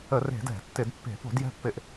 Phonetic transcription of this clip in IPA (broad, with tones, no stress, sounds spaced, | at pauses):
ə˧˩˧ r e̤˧˩˧ d ɛ̤˧˩˧ tː ɪ˧˩˧ d pː e̤˧˩˧ p o̤˧˩˧ d j ɛ̤˦˨ pː ɪ˧˩˧ ʔ